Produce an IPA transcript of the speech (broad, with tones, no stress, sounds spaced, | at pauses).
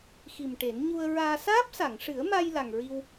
x i˨˩ m ʈ e˨˩˦ n ɲ u˧ ə̯ ɹ aː˧ s aː˦˥ p̚ s a˨˩˨ ŋ ʂ ɨ˨˩˦ ə̯ m a˧ j l a˨˩ ŋ ɹ i˧ w